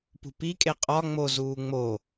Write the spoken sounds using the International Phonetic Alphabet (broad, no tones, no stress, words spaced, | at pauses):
pṳpikʼe qʼɒ ŋ͡mo zuːŋ͡mo